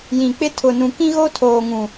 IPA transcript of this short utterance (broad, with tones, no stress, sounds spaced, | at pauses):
j ĩ˨ k͡p ɪ˦ tʰ ʊ˨ n ũ˨ k ĩ˦ ɣ o˦ tʰ oː˨ ŋ ũ˨